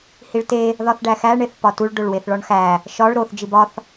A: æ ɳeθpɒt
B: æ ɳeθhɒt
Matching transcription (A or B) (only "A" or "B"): A